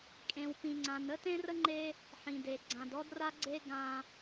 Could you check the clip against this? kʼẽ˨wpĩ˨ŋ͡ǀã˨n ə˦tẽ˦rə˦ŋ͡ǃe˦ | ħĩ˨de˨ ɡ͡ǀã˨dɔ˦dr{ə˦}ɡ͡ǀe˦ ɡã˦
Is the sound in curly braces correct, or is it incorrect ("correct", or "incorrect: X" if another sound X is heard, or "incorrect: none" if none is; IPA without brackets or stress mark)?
incorrect: a˦